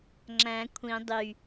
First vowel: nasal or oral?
nasal